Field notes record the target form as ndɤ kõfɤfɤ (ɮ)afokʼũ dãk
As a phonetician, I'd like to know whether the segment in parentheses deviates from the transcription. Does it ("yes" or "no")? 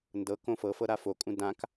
yes